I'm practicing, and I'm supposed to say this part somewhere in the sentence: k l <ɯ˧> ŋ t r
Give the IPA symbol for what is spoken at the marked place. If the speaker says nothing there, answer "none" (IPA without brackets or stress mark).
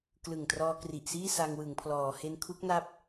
ɯ˨˩